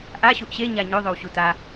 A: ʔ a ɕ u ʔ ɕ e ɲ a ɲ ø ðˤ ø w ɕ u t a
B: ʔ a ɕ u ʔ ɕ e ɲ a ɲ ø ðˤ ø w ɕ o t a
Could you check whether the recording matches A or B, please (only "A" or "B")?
A